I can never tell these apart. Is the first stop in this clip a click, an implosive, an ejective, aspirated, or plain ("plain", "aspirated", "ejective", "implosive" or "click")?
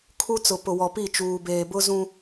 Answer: aspirated